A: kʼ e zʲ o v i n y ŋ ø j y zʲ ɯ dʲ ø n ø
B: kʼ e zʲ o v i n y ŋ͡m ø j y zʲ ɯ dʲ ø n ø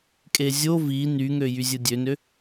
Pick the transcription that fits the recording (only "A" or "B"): A